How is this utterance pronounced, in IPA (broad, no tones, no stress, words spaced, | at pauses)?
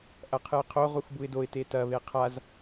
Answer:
ʔɐqʰɨɪ̯qʰo ʁuxbuɪ̯doɪ̯ tetɐ βeqʰaz